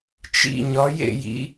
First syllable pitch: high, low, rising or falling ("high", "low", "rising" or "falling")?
falling